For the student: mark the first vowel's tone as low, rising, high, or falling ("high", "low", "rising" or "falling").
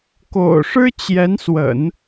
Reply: low